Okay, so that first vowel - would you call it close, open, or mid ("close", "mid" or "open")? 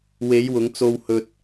mid